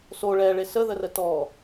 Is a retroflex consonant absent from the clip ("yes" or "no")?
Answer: no